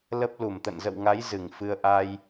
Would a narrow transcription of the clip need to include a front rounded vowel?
no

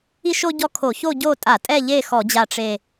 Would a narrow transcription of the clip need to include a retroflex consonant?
yes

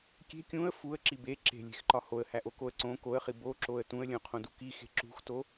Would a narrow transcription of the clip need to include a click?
yes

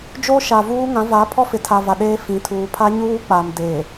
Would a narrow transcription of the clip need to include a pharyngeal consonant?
no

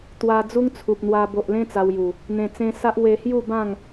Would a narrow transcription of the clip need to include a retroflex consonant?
no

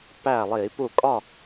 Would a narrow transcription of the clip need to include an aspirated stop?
no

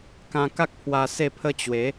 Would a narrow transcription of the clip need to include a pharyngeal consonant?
no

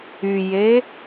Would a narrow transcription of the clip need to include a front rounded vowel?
yes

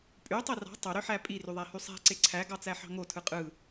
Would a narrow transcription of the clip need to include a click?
yes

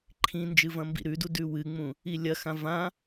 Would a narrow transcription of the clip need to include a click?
yes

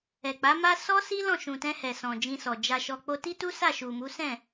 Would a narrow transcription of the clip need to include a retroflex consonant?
no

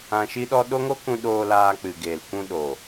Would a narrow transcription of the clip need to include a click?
no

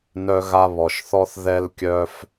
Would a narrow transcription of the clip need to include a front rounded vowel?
yes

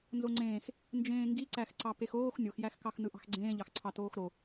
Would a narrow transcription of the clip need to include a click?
yes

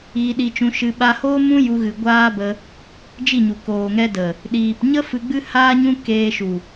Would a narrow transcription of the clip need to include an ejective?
no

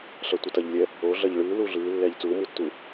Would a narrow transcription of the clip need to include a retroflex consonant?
yes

